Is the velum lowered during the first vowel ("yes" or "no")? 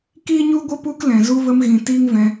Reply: no